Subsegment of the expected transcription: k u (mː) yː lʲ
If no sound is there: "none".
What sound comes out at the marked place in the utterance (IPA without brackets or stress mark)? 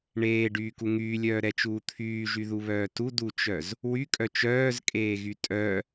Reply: ŋ